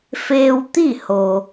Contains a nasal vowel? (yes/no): no